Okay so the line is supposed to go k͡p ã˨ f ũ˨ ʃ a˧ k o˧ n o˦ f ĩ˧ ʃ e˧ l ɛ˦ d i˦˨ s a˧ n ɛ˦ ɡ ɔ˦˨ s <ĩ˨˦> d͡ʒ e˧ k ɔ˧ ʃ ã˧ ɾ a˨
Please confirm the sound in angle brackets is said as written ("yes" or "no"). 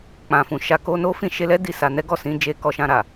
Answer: yes